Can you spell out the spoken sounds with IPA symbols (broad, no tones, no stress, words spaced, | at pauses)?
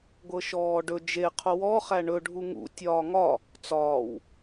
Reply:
ɡʷɤʃɔːɖɵ d͡ʒe qʰowɔ χæɳɵ ɖʱuŋṵ tʲɒːŋɒ | t͡sɒːw